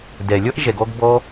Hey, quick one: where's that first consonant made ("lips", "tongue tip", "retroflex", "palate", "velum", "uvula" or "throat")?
tongue tip